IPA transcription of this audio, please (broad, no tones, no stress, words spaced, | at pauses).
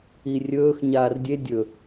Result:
irʲɵːx ɲaːrdʲe dʲɵ